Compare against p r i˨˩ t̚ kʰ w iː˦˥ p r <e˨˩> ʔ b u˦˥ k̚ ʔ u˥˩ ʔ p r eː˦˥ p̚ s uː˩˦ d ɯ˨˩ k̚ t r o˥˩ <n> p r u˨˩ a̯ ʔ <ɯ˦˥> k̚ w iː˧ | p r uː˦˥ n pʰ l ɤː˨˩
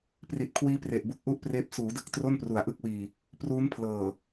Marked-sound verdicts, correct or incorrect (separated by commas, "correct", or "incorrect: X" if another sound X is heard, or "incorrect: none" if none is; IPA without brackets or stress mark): correct, correct, incorrect: ɯ˥˩